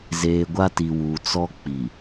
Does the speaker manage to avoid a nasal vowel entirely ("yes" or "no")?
yes